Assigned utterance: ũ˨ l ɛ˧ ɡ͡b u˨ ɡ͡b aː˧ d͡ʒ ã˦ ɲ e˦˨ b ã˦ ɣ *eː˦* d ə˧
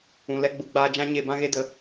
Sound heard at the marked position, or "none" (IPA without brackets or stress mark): e˦